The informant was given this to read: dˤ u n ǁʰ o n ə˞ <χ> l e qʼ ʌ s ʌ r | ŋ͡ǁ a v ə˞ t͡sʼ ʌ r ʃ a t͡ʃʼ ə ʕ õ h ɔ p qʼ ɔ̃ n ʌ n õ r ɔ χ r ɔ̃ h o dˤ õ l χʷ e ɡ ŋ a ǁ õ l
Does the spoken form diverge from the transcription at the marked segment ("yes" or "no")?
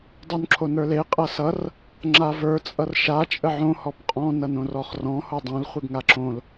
yes